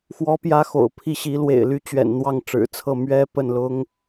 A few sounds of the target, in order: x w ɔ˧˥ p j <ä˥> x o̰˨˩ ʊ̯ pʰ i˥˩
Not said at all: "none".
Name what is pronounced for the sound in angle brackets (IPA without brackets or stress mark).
ä˧˥